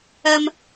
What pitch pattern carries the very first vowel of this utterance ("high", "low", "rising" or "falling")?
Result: high